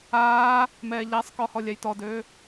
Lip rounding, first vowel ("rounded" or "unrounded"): unrounded